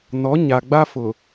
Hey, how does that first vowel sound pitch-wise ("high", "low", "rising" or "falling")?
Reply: rising